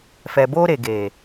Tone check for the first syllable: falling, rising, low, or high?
low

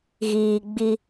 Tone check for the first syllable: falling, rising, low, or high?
low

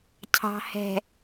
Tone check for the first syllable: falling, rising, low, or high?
low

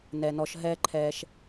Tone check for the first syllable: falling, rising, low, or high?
low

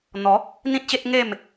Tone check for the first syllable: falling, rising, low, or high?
rising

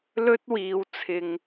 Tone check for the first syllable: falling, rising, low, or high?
high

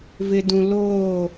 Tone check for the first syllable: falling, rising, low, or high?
low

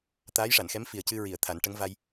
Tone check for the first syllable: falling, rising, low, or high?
rising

